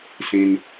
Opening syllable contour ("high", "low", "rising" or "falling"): low